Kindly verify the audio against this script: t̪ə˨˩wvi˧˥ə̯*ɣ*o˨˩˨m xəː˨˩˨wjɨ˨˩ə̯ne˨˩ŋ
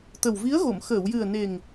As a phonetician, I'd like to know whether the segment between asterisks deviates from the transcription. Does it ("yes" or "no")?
no